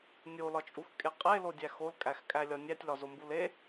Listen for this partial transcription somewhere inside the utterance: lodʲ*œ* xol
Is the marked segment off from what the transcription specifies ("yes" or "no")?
yes